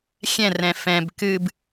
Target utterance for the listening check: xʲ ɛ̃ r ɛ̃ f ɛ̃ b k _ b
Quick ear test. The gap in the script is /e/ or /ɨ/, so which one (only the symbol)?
ɨ